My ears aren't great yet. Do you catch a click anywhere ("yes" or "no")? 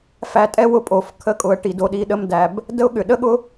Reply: no